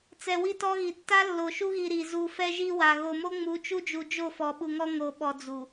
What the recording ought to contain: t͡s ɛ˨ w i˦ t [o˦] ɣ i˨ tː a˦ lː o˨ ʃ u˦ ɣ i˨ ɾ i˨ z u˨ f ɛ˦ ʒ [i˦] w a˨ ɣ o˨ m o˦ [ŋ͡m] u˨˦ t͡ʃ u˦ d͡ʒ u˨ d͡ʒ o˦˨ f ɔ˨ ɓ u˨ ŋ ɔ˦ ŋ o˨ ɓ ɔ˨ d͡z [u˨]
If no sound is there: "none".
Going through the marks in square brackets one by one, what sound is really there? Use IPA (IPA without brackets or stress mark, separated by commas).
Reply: ɔ˦, i˦, ŋ͡m, u˨